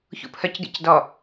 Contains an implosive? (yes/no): no